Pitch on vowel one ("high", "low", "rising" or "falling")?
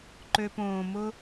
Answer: low